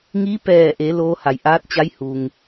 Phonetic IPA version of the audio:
ŋ i˧˥ p ɛː˧˩ ʔ e˩˧ l oː˧˥ h a˩ j ʔ aː˧˥ t̚ t͡ɕ a˧˥ j h u˩ ŋ

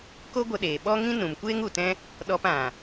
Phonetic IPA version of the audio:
k o˦ ɡʷ ə˧ ɗ eː˨ ɓ ɔ˦ ŋ ĩ˦ n ũ˨ m kʷ eː˦ ŋ u˨ t ɛ̃˦ | ɗ ɔ˧ p ã˨

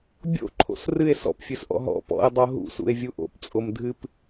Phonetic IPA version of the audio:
bʲ o̰ ǃʰ o̰ s r ɨ e̯ s ɔ̰ p fʲ ɨ s ʔ ɔ̰ ɦ ɔ̰ p ɔ̰ e̯ dˤ o ɦ ṵ s ṵ e̯ vʲ u ʔ o̰ p t͡sʼ o m dʱ ɨ p

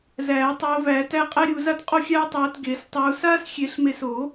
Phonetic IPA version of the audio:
z æː˨˩˦ tˤ oː˨˦ v æː˨˩˦ t æ˥ qʼ æ˥ ɾʲ u˨˩˦ z a˥ t qʼ o˥ xʲ aː˥ tˤ oː˨˦ t ɡ eː˨˩˦ s tˤ uː˨˦ s aː˥ s xʲ e˨˩˦ ɬ m e˨˦ s o˨˩˦

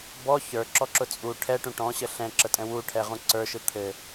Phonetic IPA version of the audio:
b ɔ ç ə˞ ǁ ɔ ǁ ʊ t͡sʼ u ʈʰ ɛ ʈ ũ ʈ ɔ̃ ɕ ə ɬ ɛ̃ ǁ ə tʼ ɛ̃ w u ʈʰ ɛ ʁ ũ ǀ ə˞ ʃ ɯ t̪ʰ ɘ

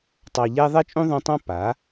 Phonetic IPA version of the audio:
tˤ ɑ˧ ʎ ɛ˦ ðˤ ɛ˦ t͡ʃʼ ũ˦ ðˤ ũ˧ tˤ ɑ̃˦ p a˨˦

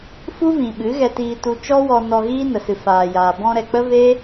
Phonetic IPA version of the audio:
f u˦ v ĩ˨ ɓ ɨ˨˦ ɣ ɛ˧ t iː˧ t u˧ t͡ʃ ɔ˦ w ɔ˧ n ɔ˧ ɣ iː˦ n ə˨ s ɨ˨ f aː˨ j aː˨ b ɔ̃˧ ɾ ɛ˨ k͡p ə˦ v e˦

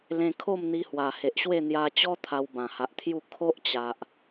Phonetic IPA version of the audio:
l ẽ˧ kʰ o˥˧ m n̪ i˧ h w a˨˩ h e˨ ʔ ɕ w e˥˧ n̪ j a˧ t͡ɕ ɔ˦ t̪ʰ a˧ w b ã˨˩ h a˨ ʔ t̪ʰ j u˥˧ kʰ o˦ ʔ t͡ɕ a˨ ʔ

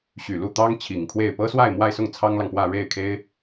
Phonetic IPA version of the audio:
ɕ y˨˩ l u˥˩ t̪ ɑ˥ ŋ t͡ɕʰ i˨˩ ŋ kʰ w e˥˩ ɪ̯ p ɤ˥ s w a˥˧ ɪ̯ m w a˥˧ ɪ̯ s ʊ˥˩ ŋ t͡sʰ ɑ˥ ŋ l ɑ˨ ŋ p w ä˥˧ ɻ e˥˩ ɪ̯ kʰ e˥ ɪ̯

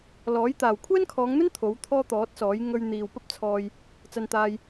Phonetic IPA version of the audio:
l ɔː˨˥ j t̪ aː˨ w kʷʰ ɛː˥ n kʰ ɔː˨˧ ŋ n̪ ɵ˥ n t̪ʰ o˨˥ w t̪ʰ ɔː˥ t̪ ɔː˨˥ t̚ s ɔː˨˥ j ŋ ɵ˧ ɥ n̪ iː˨ w p ɐ˥ p̚ t͡sʰ ɔː˧ j | t͡s ɐ˧ n t̪ aː˧ j

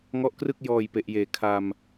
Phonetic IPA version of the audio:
ŋ ɔ˦˥ ʔ k r ɯ˥˩ k̚ j ɔː˨˩ j p e˨˩ ʔ j eː˨˩ kʰ a˧ m

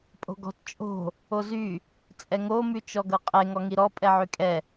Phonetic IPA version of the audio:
pʼ o̤ ɡ ɔ̤ t t͡ʃʼ o̤ | o z y | t͡sʼ ɛ ŋ o m y t͡ʃ ɔ ɡ ɤ qʼ e ŋ ɔ ŋ i ɾ ɔ pʼ ɛ ʕ y kʼ ɛ

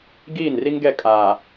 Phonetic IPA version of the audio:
ɡ iː˦˨ n r i˦ ŋ ɡ ɛ˦˨ kʼ aː˨

